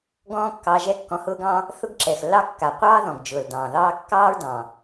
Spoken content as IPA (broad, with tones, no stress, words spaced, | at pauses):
ɡɔ̃ː˥kːɑ˧ ʒɛ˥kːɔ̃˧hʊː˥ɡɑ̃˥ | θʊ˥ɡǁɛ˩xlːɑ˥ kːa˩qʷɑː˥ðɔ̃˩ɡ d͡ʒʊː˩ldɑ̃ː˩ðɑː˥ kːɑː˥ɹdɑ̃˩